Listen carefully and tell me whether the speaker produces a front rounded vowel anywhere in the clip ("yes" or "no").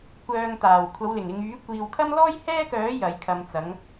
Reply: yes